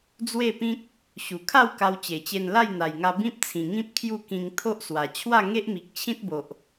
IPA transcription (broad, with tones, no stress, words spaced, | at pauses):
d͡zwe˥˧pĩ˦k̚ | ɕu˨˩kʰa˥˧w ka˧wt͡ɕe˨˩t͡ɕe˧n la˥˧jn̪a˨˩jŋa˧ bĩ˦p̚t͡sʰĩ˨˩ŋĩ˦p̚ kʰju˥˧kĩ˧ŋ t̪ʰo˦ʔswa˨˩ t͡ɕʰwa˥˧ŋe˦ʔmi˨k̚ t͡ɕʰĩ˦t̚bo˨ʔ